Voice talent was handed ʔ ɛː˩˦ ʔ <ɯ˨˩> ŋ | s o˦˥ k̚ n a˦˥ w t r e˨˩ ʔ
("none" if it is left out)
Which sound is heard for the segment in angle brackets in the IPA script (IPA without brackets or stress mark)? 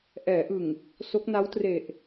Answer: ɯ˨˩